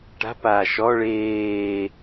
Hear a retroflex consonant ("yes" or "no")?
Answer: yes